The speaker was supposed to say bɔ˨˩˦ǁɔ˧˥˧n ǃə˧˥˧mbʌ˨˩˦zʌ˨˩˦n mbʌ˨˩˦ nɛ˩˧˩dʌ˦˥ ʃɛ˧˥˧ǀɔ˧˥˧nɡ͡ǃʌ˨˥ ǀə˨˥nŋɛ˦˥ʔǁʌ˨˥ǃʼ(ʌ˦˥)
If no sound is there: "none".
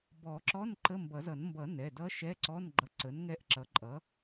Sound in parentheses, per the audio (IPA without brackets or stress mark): ʌ˨˥